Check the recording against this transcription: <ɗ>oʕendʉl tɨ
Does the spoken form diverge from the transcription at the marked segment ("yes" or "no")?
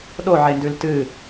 no